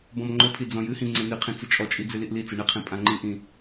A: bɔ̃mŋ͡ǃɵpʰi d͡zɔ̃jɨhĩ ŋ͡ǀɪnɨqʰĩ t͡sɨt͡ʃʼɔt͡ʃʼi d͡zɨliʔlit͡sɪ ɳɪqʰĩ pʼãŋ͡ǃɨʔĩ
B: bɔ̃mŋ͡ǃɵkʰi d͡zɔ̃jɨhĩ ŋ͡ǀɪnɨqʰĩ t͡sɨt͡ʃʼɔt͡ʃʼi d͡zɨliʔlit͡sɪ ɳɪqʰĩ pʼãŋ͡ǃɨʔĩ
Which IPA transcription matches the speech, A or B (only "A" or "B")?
A